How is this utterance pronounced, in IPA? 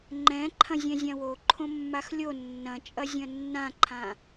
ŋ͡ǃ ɛ̃ ǃʰ ɐ̃ zʲ ɛ̃ zʲ ã w o ǃʰ õ mː a x lʲ o nː ɐ̃ t͡ʃʼ ɐ zʲ ɐ̃ nː ã ǃʰ ã

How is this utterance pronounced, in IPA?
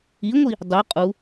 i ŋʷ i | dˤ u qʼ u

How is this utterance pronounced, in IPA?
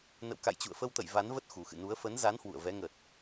n ə̰˧˨ w k a̰˧˨ j t͡ɕ ṵ˧˨ ə̯ f ə˧ w t̪ ə̰˧˨ j v a˨˦ n v ə˦˥ t̚ x u˨˩ x ɨ̰˧˨ n u˨˦ ə̯ f ə˨˦ n z a˨˦ n h w ṵ˧˨ ə̯ v ɛ˨˦ ŋ ə˨˩ t̚

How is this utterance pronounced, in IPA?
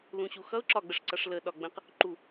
l ũ ɕ u x ʌ ʊ̯ ǁ ɒ ɡ͡b ə ʂ ǀ ʌ ʂ l ə ɗ ɒ ɡ͡b ə̃ q | ǃ u

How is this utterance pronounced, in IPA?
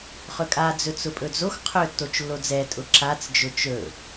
χ ɵ kʼ a d͡z ɵ t͡s ʊ pʼ ɵ d͡z o x qʰ ɵ tː o t͡ʃ lː o d͡z ɛ tʼ ʊ ǁ a t͡s d͡ʒ ʊ t͡ʃ ɵ

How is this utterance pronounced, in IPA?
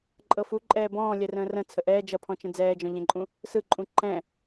ǃʼ ɤ f u ǃʼ ɛː b ɔ̃ː lʲ ɛ r ə̃ː r ə̃ t͡sʰ ə ʔ ɛː d͡ʒ ʌ pʰ ɔ̃ t͡ʃ ə̃ d͡z ɛː d͡ʒ ɔ̃ ʎ ɛ̃ ǃʼ ũ | s ɯ ǃʼ ũ ǃ ɛ̃

